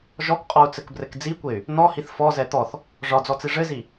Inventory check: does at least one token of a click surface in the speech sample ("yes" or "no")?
no